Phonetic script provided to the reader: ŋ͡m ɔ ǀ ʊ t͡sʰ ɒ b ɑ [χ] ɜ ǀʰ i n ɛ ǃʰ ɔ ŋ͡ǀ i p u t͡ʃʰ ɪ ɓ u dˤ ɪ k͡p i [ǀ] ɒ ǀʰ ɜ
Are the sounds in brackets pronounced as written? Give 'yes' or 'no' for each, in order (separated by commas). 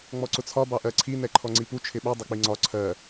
no, no